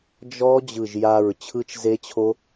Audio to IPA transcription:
d͡ʒɔ˦˥ d͡ʑɯ˧˩ʒja˧˩ɹ t͡ɕʰɯ˦˥t͡ʃze˦˥t͡ɕʰo˦˥

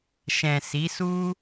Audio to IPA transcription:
ʃɛ̃˨si˨˦su˦

